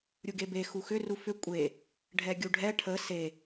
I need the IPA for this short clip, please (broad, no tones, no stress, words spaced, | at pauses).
ɾʲuɡebe xuxʏ rufʏ kʷʼe | ɖʱɛɡʲuɖʱɛ ʈʰə se